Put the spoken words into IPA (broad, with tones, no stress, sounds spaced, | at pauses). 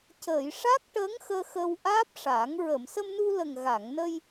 c əː˨˩˨ j ʂ a˦˥ k̚ ʈ əː˧˥ ŋ x əː˧ x ə˧ w ʔ aː˦˥ p̚ ʂ a˨˩˦ ŋ ɹ ə˨˩˨ m s ə˧ m n u˧ l ə˨˩ ŋ ɣ a˨˩˨ ŋ n ə˧ j